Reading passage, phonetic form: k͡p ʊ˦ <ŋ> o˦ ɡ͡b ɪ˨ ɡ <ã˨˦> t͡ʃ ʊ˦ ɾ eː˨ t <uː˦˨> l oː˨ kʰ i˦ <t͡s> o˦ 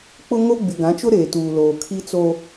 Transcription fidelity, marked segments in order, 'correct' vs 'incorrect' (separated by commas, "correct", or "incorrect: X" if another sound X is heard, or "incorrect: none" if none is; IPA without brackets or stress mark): correct, correct, incorrect: uː˨, correct